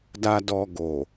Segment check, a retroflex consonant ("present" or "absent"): absent